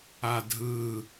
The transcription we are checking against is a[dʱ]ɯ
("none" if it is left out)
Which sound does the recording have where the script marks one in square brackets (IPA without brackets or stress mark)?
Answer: dʱ